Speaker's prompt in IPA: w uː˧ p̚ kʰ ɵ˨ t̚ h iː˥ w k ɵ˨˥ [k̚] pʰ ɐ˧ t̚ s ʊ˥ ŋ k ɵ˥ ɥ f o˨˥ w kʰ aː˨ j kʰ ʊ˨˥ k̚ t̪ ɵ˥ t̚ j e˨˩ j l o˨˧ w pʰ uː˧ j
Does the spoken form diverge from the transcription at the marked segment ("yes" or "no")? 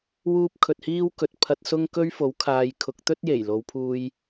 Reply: yes